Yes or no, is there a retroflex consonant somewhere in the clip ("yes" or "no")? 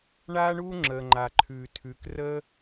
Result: yes